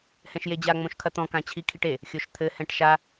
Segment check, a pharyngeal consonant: absent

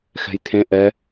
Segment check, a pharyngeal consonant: absent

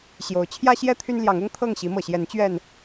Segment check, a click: absent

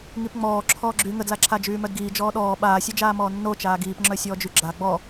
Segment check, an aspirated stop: present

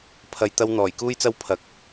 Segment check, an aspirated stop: present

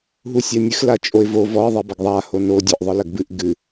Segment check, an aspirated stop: absent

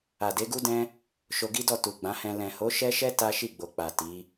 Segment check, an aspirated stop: absent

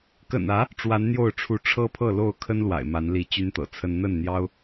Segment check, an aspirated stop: present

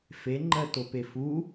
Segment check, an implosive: absent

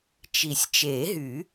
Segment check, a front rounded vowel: present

